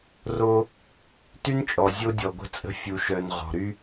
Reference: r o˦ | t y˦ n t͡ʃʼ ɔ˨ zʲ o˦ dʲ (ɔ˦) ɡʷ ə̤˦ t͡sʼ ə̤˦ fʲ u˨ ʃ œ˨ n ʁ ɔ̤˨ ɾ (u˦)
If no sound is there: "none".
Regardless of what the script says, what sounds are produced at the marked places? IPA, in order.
ɔ˨, y˦

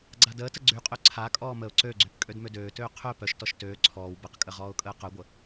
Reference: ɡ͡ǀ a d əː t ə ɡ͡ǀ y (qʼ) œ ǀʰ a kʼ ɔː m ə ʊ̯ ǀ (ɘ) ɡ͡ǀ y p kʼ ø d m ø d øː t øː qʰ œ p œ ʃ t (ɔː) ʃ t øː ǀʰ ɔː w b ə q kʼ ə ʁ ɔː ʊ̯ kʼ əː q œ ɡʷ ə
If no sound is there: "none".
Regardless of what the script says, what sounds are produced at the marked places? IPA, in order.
qʼ, ø, ɔ

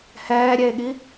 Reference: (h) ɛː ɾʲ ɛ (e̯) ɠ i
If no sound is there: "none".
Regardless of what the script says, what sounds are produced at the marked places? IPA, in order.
h, e̯

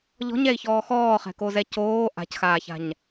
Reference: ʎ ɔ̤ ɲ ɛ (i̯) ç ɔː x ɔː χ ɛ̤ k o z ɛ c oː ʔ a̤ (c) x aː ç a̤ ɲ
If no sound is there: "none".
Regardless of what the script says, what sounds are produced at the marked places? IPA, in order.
i̯, c

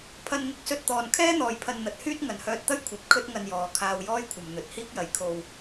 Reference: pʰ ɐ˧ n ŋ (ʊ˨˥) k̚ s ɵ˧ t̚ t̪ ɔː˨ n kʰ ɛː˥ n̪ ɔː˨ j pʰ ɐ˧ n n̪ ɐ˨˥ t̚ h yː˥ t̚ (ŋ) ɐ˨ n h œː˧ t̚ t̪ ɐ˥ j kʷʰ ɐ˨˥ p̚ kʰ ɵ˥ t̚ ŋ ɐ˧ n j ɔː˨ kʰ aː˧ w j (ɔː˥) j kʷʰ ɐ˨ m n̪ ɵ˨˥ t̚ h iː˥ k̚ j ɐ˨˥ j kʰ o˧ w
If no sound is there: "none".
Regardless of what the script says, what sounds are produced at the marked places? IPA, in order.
ʊ˧, ŋ, ɔː˥

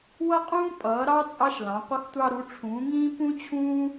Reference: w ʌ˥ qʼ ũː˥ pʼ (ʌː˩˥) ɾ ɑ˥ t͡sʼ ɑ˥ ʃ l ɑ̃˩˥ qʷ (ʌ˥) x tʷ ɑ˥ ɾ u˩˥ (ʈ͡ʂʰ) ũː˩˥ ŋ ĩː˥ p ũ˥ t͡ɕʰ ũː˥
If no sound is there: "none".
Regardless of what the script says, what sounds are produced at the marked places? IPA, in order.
ʌː˩˥, ʌ˥, ʈ͡ʂʰ

